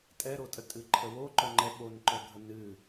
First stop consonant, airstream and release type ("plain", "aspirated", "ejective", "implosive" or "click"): ejective